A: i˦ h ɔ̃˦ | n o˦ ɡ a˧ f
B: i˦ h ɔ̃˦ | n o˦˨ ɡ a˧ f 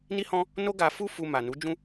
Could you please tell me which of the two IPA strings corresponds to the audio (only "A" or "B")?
A